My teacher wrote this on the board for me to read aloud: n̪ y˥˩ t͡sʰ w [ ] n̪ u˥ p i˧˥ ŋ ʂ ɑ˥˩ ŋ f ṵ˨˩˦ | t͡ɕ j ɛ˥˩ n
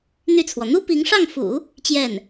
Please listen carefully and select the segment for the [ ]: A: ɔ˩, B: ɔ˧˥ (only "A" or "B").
A